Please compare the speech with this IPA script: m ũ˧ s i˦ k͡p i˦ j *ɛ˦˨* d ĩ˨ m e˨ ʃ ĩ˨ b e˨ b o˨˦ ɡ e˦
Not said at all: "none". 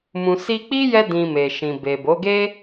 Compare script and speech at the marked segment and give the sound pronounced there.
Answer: ɛ˧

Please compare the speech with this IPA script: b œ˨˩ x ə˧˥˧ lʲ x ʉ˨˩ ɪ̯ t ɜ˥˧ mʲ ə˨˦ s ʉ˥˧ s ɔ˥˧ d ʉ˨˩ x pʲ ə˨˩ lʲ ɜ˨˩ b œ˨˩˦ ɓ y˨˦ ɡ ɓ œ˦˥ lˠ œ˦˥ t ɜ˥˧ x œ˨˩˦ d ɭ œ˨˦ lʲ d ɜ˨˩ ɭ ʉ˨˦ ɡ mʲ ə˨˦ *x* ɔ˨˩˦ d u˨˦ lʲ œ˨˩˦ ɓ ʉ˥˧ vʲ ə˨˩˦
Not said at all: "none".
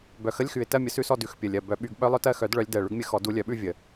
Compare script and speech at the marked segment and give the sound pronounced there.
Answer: x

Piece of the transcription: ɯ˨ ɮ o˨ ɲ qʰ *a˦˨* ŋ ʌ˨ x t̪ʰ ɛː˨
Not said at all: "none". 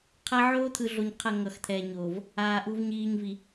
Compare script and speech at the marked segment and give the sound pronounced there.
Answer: a˦˨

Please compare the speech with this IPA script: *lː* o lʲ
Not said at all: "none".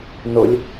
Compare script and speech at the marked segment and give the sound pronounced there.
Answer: n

